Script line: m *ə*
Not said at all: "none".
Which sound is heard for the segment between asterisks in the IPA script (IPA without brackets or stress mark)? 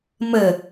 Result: ə